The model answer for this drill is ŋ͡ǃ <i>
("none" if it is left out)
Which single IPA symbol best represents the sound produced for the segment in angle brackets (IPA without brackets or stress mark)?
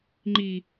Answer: iː